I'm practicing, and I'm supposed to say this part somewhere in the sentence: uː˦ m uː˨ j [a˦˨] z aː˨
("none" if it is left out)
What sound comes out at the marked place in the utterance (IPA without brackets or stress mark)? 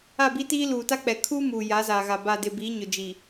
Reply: a˨˦